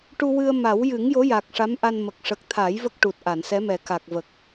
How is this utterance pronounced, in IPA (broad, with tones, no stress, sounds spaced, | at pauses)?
ʈ u˧ w ɨ˧ ə̯ m a˨˩˦ w j ɨ˨˩˦ ŋ j o˧˥ j a˨˩ k̚ ʂ a˧˥ m ʔ a˧ n m ə˨˩ k̚ ʂ ə˨˩ k̚ t̪ʰ a˨˩˦ j v ə˦˥ k̚ ʈ u˨˩ t̚ ʔ a˨˩˨ n s ɛ˧˥ m ɛ˨˩ k a˨˩ k̚ v ə˨˩ k̚